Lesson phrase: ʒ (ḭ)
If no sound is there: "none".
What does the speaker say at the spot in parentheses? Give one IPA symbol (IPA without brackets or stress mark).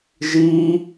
i